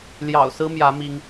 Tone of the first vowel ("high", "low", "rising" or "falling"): low